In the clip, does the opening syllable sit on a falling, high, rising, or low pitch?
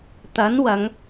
rising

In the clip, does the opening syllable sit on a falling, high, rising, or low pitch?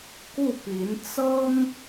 falling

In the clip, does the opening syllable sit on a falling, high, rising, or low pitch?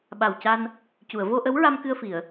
low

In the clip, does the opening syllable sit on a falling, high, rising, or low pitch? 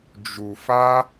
low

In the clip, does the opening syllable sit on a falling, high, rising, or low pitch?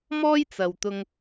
high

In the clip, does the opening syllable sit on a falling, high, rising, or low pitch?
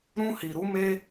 high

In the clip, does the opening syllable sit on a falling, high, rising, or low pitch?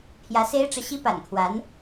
rising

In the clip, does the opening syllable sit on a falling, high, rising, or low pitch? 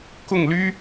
falling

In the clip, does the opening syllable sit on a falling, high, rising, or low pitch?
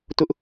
high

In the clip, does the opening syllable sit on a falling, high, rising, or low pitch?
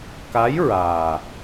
rising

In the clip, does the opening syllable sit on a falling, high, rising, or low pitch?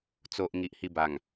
low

